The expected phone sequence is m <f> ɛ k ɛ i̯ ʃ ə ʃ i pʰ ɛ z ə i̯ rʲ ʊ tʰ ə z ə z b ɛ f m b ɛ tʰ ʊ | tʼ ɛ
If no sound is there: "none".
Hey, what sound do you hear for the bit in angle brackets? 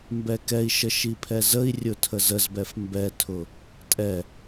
b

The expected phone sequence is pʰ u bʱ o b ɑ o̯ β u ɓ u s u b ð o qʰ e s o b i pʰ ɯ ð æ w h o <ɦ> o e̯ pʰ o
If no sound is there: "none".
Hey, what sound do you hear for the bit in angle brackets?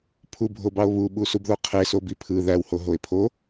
ɦ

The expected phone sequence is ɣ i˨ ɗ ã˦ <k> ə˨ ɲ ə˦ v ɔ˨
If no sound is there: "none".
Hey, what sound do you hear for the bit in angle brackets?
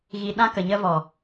k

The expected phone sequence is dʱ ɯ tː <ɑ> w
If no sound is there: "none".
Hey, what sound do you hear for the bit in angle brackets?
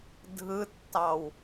ɑ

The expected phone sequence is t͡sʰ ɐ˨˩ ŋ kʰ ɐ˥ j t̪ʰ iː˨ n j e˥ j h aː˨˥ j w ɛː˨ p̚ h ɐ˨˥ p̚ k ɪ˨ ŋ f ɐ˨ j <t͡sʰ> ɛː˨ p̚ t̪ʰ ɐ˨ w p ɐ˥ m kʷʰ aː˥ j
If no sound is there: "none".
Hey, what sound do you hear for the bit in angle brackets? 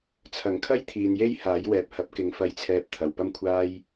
t͡sʰ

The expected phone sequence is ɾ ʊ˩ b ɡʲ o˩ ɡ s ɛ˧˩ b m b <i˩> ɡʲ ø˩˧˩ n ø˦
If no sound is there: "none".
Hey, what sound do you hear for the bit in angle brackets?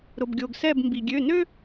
i˩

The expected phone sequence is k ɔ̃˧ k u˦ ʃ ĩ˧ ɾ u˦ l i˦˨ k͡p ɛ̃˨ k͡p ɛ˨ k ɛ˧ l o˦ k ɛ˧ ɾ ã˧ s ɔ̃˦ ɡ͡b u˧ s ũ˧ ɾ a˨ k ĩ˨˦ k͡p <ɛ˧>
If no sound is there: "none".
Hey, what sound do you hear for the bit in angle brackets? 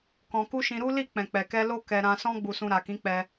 ɛ˧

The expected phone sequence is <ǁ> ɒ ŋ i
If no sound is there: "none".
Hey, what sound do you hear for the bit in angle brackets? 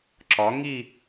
ǁ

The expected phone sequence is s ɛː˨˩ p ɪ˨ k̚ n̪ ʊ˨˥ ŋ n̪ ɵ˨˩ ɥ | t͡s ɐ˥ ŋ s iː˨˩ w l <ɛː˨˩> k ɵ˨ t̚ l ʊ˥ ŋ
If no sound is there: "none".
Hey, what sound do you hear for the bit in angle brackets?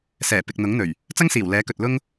ɛː˨˥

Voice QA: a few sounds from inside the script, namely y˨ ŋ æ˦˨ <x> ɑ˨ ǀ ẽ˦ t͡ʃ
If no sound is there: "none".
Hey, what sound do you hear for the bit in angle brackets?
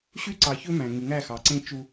x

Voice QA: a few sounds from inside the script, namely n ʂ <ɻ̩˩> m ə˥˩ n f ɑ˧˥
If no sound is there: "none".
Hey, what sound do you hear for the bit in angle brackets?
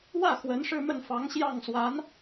ɻ̩˥˧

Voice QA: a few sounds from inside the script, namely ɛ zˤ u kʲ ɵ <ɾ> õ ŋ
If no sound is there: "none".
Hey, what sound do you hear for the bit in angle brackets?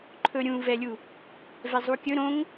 ɾ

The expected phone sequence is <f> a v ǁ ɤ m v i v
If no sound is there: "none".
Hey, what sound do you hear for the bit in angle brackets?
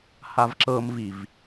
h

